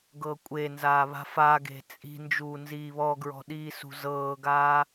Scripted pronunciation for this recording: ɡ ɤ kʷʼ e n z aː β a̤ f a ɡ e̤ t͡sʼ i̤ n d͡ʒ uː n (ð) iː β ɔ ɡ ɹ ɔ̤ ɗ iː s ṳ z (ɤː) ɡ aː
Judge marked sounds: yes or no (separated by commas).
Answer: no, yes